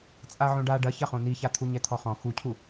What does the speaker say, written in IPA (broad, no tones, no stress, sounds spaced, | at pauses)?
t͡sʼ a ʕ õ ɖ a ɖ ɐ ç ɐ χ õ n i ç a t̪ʰ u ɲ ɛ t̪ʰ ɔ χ ɔ̃ x u cʰ u